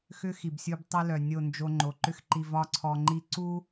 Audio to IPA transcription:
x ʏ˦ x i˨ b sʲ u˧ b tˤ œ˦ l œ˨ nʲ o˦˨ n d͡ʒ o˧ ŋ͡ǃ o˨ ǃ ʏ˧ x ǃ i˨ v ɒ˧ ǀʰ ɔ˨ ŋ͡ǃ i˧ ǀ u˦

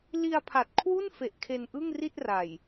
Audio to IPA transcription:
l i˧ a̯ pʰ a˨˩ t̚ kʰ w u˥˩ n f e˨˩ ʔ kʰ e˧ n ʔ ɯ˥˩ ŋ r i˥˩ t̚ r a˨˩ j

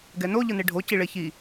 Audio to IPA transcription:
ɡ ɛ n o ʎ ɯ n e ɖʱ o c i ɭ e ç i

